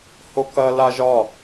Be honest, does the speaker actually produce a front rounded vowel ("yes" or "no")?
no